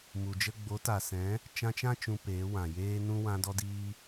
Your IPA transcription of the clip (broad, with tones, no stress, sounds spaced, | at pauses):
m u˨ d͡ʒ ə˦ ɡ͡b o˨˦ t a˨ s ɛ̃˨˦ | t͡ʃ ã˧ t͡ʃ ã˦ t͡ʃ ũ˧ p eː˨˦ w ã˨ j eː˧ n ũ˧ w ã˧ d ɔ˧ d iː˧